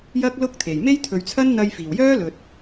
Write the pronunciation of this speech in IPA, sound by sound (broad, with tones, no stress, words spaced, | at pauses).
jɐ˥k̚lʊ˥k̚t̪ʰe˨˩j me˥jt̪ʰɵ˨˧ɥt͡sʰɐ˥n n̪ɐ˧jfiː˨˩wjœː˥lɵ˨t̚